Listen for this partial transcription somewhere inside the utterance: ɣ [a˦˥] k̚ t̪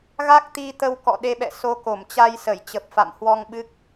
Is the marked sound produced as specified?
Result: yes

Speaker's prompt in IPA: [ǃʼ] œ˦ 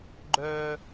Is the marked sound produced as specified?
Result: no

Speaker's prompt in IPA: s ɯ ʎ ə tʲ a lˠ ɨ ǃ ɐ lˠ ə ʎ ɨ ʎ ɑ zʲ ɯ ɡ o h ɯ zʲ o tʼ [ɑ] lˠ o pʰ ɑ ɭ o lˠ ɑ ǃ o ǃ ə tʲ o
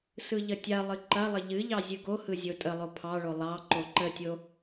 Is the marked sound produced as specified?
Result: no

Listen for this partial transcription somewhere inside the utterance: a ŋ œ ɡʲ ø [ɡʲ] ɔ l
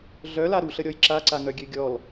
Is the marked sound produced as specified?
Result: yes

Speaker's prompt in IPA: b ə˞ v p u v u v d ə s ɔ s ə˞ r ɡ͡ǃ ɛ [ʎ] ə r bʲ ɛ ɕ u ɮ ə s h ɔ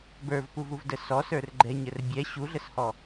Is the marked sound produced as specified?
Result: no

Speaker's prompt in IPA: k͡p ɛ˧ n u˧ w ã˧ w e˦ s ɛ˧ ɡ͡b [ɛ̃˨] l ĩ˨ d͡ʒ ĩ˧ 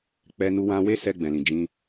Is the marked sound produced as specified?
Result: yes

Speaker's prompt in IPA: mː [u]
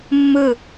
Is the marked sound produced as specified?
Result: no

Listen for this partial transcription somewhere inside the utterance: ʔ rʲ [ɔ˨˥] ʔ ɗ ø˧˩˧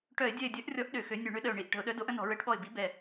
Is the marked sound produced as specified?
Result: yes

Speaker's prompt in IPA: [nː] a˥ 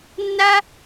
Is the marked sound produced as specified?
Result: yes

